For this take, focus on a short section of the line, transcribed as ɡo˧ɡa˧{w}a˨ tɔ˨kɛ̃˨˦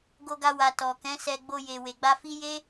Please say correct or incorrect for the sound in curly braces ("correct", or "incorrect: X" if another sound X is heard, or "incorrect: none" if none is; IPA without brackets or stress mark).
correct